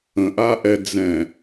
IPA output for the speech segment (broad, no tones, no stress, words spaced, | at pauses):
ə̃ʔaʔɛ d͡zɛ̃